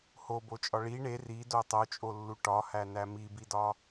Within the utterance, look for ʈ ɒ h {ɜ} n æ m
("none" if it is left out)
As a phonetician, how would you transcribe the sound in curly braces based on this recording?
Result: æ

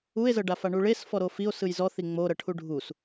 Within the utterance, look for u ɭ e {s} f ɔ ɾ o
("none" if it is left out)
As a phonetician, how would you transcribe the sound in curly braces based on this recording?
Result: s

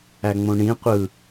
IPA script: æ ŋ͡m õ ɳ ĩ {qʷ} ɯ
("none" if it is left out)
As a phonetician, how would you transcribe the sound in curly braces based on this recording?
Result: qʷ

